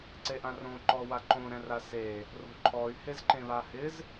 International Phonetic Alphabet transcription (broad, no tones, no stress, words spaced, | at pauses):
ǀeʔãrõ ǃɔwaǃõ ɾɛ̃rase | ro̤ǃʰɔy̯ hezǃẽβahɪz